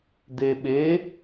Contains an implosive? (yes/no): yes